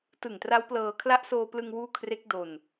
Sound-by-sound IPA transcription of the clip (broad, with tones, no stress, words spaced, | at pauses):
tɯ˨˩ŋtra˦˥wplɤː˧ kʰla˦˥ʔsoː˧plɯ˧ŋ wuː˥˩ kʰre˦˥k̚ do˧n